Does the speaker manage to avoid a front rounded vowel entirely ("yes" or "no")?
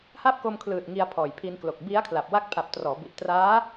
yes